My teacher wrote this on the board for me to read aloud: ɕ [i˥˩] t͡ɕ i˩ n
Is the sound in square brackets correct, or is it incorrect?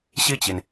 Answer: correct